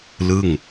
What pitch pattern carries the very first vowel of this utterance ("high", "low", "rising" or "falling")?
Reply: falling